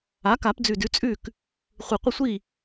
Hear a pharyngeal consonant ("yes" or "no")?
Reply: no